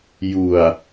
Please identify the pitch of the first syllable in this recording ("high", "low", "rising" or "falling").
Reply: low